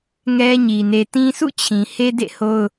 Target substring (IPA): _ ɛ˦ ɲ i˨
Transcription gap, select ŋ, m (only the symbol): ŋ